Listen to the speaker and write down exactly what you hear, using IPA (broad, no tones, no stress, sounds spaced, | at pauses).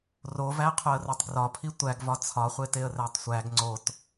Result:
r o v æ qʰ o ə̯ r o tˤ ɡ r ɒ pʰ i tʷ æ ɡ v ɒ t͡sʰ ɒ χʷ e t e ə̯ r æ tˤ sʷ æ ɡ ŋ͡ǀ o t